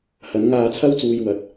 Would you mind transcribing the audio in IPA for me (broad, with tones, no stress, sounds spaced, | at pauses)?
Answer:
h ɐ˨˧ n ŋ aː˧ t͡sʰ ɐ˥ w t͡s uː˧ j w ɐ˨ t̚